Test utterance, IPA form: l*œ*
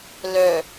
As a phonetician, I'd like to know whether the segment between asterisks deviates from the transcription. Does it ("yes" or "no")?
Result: no